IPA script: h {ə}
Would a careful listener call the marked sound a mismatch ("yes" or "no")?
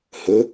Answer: no